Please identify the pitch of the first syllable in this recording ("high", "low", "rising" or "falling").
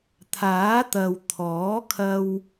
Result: rising